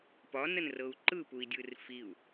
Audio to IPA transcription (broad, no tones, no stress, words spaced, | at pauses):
pɒnənrɤu̯ ǃɯpui̯dʲɯr fiu̯